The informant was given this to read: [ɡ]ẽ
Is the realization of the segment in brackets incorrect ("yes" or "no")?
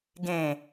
no